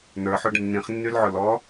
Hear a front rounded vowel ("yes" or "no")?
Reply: yes